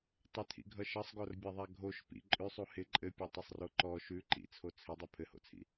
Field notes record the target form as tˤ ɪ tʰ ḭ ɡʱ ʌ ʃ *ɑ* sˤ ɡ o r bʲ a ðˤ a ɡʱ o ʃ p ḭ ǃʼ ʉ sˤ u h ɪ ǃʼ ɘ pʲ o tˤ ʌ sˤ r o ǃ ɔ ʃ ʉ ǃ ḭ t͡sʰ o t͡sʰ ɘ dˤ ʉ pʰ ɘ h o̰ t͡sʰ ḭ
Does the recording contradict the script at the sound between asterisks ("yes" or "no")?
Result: yes